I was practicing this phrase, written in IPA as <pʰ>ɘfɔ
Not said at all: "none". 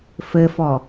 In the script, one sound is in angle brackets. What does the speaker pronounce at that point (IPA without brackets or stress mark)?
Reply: f